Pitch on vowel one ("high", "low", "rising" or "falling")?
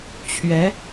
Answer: rising